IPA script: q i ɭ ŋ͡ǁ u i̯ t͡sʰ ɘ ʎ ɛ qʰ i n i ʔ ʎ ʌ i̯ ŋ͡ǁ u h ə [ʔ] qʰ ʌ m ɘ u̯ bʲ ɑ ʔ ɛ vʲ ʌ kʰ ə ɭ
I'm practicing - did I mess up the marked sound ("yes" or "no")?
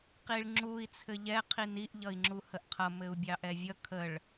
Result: no